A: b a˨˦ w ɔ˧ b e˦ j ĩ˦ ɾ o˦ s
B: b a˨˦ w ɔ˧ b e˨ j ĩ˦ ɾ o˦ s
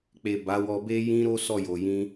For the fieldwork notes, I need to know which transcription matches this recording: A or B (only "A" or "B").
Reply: A